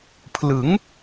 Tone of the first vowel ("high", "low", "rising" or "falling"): rising